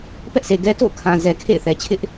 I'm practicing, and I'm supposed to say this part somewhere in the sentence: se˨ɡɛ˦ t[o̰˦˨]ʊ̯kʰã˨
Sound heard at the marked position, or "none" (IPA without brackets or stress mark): o̰˦˨